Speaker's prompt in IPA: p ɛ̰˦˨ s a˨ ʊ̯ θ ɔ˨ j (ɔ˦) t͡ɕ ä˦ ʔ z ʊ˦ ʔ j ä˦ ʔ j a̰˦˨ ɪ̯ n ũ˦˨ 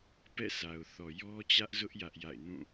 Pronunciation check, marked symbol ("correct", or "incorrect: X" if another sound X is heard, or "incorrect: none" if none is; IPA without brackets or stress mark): correct